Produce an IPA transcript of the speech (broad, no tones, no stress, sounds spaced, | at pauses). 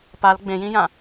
p a l ɡ͡b ẽ j ĩ j ã